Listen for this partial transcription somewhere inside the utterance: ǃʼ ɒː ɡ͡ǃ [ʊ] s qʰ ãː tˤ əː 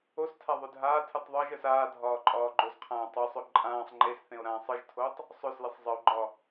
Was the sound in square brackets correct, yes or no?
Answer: no